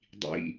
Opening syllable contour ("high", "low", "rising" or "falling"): low